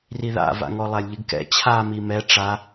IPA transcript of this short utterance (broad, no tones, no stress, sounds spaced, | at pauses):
r i ð a̰ v a̰ ŋ ɔ lˠ a lʲ ʎ ɨ ɡ k ɛ̰ t͡ɕʰ a m i m ɛ ʈ͡ʂ a